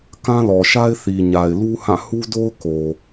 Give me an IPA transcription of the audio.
k ã˦ l ɔ˨ ʃ a˦ ɪ̯ θ i˨ ɲ a˨ ɪ̯ l u˦ h ã˦˨ h u˦ d o˦ ʊ̯ k o˨

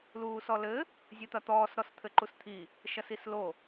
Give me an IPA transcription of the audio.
l uː s ɔ l ɘ | zʲ ɨ t̪ ɐ t̪ ɔː s ɾ ɔ s t̪ʰ ɘ ǃ u s t̪ʰ i | ʃ ɐ s i s l o

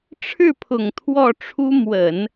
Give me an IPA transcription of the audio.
ʈ͡ʂʰ ɻ̩˥˩ pʰ ʊ˨˩ ŋ t̪ʰ w ɔ˥˩ ʈ͡ʂʰ u˥ m w ə˨˩˦ n

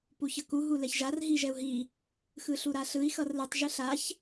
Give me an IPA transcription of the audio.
p u ç ʌ k u ɦ u l ɛ ç ʒ a r ɦ i ʒ ɛ u̯ ɦ i | x ɯ ɬ u ɾ a ɬ ɯ i̯ x ʌ r l ɯ tˤ ʒ ɯ ɬ a ç

